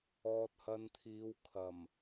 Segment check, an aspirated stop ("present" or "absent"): present